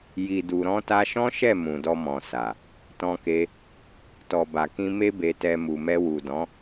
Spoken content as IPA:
j i˨ d u˨ ɾ ɔ̃˧ t a˧ ʃ ɔ̃˦ ʃ ɛ˦˨ m ũ˨ d ɔ˧ m ɔ̃˨ s a˨ | t ɔ̃˧ k e˧ | t ɔ˨ b a˨ k ĩ˧ m e˧ b e˨ t ɛ˨ m u˨ m ɛ˧ w u˨ d ɔ̃˨˦

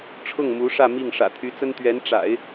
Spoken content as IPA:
ʈ͡ʂʰ ʊ˥˩ ŋ m u˧˥ ʂ ä˥˧ m i˥˩ ŋ ʂ ä̰˨˩ t̪ʰ y˧˥ t͡s ə˥ n t̪ ɥ ɛ˧˥ n ʈ͡ʂ a̰˨˩˦ ɪ̯

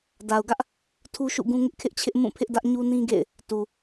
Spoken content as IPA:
d a˨ ʊ̯ ɡ ä˦ ʔ | tʰ u˦ ʃ ṵ˦˨ ɡ ũ˦ ŋ ɪ˦ ʔ kʰ ɪ˦ ʔ t͡ɕʰ ɪ˦ ʔ m ũ˦˨ pʰ ɪ˦ ʔ d ä˦ ʔ ɲ u˦ n ĩ˦ ɡ ḛ˦˨ ɪ̯ | t u˨

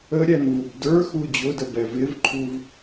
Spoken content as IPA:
ə ɾʲ æ n v u b d ə˞ x u d͡ʑ ʊ d ə b ɛ v ɪ v ǃʰ u v

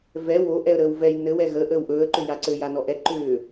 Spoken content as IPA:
v ɛ w o ʔ ɛ ə̯ ɾ əː w v ɛ j n ɘ w ɛ ɣ ə ʔ əː w ʔ ɵː ə̯ ǃ ʏ j a ǀ ɘ j a n ɔ ʔ ɛ ǃ ʏː

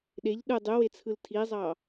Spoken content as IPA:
ɗ e ʎ ɗ ɯ dˤ y w e t͡sʰ ɯ l tʰ i zˤ ɑ

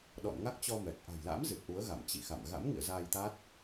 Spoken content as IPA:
ɗ ɔ̰˧˨ n ŋ a˦˥ k̚ t͡ɕ ɔ˧ m ɛ˨˩ k̚ ʔ a̤˨˩ j l a̰ː˧˥ m z ɨ˨˩ t̚ ʔ u˨˦ ə̯ ɣ a̰˧˨ m t͡ɕ ḭ˧˨ x a̰˧˨ m ɣ a̰˧˥ m ŋ ḭ˧˨ ə̯ z aː˧ j t̪ a˦˥ t̚

